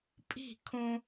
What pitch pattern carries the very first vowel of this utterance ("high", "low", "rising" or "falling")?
falling